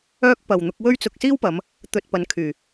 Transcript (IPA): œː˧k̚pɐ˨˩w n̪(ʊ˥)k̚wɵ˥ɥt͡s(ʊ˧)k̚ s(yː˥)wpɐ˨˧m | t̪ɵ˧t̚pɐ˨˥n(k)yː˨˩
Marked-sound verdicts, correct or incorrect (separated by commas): incorrect, correct, incorrect, incorrect